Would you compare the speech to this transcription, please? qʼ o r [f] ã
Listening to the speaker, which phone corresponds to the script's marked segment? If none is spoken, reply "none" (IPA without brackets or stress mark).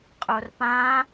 p